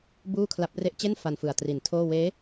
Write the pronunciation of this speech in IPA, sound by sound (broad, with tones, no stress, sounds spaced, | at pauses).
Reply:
b uː˥˩ kʰ l a˦˥ p̚ r e˥˩ ʔ t͡ɕ e˥˩ n f a˧ n f ɯ˨˩ a̯ t r i˨˩ n tʰ oː˥˩ w eː˦˥